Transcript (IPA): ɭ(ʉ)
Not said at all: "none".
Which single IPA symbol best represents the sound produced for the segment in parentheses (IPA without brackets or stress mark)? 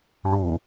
u